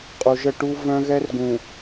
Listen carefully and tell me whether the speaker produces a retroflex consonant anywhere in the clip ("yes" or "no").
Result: yes